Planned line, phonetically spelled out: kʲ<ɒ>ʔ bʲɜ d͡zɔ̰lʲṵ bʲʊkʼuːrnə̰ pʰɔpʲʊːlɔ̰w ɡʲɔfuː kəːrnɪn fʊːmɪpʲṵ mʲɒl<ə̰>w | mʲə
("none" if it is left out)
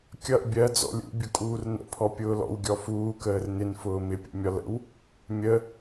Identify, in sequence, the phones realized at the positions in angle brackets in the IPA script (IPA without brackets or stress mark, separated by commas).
ʌ, ə̰